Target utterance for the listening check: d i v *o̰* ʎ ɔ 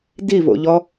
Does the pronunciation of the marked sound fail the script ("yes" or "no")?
no